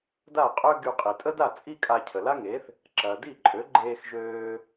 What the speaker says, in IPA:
d a˥˩ qʼ ø˥ ɡ y˧ qʼ i˩ tʼ ə˥ d a˥˩ t͡sʼ i˥ kʼ a˧ cʰ ə˩ l a˥ ŋ e˩˥ θ | ǁ ɐː˩ d i˥˩ ǃʼ ø˩˥ ɡ͡ǃ eː˧ x ʒ øː˧

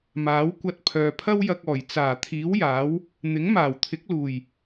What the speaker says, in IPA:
m aː˨˥ w kʷ ɐ˧ t̚ pʰ œː˨ pʰ ɐ˥ w j ɐ˧ k̚ ɔː˨˩ j t͡s aː˨˩ t̪ʰ iː˨˥ w j aː˨˥ w | n̪ ɪ˨˥ ŋ m aː˨˩ w t̪ʰ ɪ˨˥ k̚ l uː˨˩ j

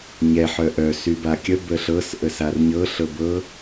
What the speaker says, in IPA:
ɲ ɛ ħ œ ʔ œ s y b a kʲ ə b ə ɬ ɤ s ʔ ə s a r ɲ ɤ ɬ ɤ b ɤ

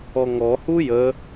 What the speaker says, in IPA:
ɔ ŋ ɔ h u j ə

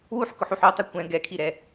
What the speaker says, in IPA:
w u ħ k ʊ ħ u ħ o tˤ e kʷ ɛ̃ ɡ ɛ kʰ i ɾ ɛ

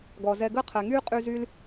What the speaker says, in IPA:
ɡ ɔː˩ z ɛ˧ ɡ əː˥ qʰ ɛ˩ ŋ yː˥ qʼ y˧ z y˥ l

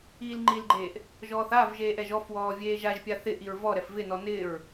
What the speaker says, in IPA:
iː l ŋ͡ǃ i l ɡ͡ǃ eː ʔ | ʒ ɔː θ a v ʒ eː ʔ ɛ ʒ ɔ f w ɔː vʲ eː ʒ a ʒ pʲ a θ ɪ ʔ i ɹ v ɔ ɾ ɛ f v ɪ n ɔ n ɪː ɹ

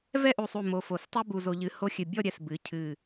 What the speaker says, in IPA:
v ɛ˥˧ ʔ u˧˩ sˤ u˧˩ m o˧ f o˧˩ s tˤ u˥ b u˧ z o˧ ʎ ɨ˧ h o˥˧ xʲ ɨ˧˩ bʲ ɔ˥˧ ɾʲ ɛ˧˩ s b ɨ˩˧ cʰ ɨ˧˩

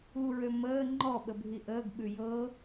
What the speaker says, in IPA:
u ɹ ø m əː ŋ͡ǃ ɔ ɓ ə bʱ i ʔ əː ɡ ɓ ʉ j ɤ

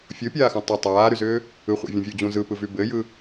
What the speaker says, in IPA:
fʲ o pʲ aː x õ tˤ ɯ tˤ aː ɾ y z ʏː | ɯ χʷ ḛ vʲ ũ vʲ u d͡ʑ ũ z ɯ p ɯ v y b ɘ j ɯ

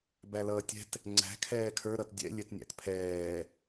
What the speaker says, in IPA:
b æ l ʌː tʲ ɛ̤ t | ŋ͡ǀ æ̤ kʰ ɛː kʰ ə˞ ɾ ʌ t dʲ ɛ̰ lʲ ɛ t nʲ æ̰ t pʰ ɛː

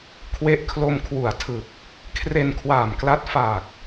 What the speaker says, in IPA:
kʰ w e˦˥ ʔ kʰ l o˧ m kʰ w u˨˩ a̯ tʰ ɯ˨˩ k̚ | kʰ r e˧ n kʰ w aː˨˩ m k l a˦˥ t̚ f a˨˩ k̚

